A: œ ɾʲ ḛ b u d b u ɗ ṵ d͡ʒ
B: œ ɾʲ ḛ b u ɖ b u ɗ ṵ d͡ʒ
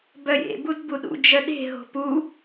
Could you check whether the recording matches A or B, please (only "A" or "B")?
A